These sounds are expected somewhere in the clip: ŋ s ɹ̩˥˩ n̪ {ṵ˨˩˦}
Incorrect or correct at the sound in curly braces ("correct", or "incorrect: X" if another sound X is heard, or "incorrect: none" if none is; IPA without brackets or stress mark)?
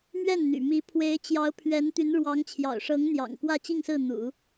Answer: correct